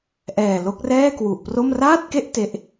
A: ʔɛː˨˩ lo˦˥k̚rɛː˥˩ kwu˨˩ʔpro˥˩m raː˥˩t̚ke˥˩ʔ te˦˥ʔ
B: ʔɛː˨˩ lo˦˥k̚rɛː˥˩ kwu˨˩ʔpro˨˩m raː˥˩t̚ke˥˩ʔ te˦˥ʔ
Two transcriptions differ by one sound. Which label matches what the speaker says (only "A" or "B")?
A